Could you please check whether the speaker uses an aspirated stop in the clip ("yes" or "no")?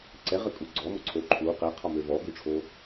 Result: yes